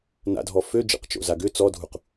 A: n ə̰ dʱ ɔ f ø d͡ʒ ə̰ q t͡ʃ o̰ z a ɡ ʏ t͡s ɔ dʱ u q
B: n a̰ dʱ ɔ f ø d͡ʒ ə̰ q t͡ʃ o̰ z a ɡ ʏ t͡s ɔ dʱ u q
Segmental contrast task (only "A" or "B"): B